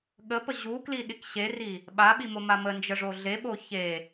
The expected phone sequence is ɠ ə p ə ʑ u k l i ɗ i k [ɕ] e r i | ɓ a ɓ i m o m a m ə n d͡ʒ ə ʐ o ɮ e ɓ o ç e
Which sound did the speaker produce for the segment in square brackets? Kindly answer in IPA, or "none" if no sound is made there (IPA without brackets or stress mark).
ɕ